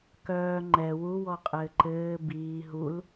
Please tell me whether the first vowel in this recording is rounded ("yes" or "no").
yes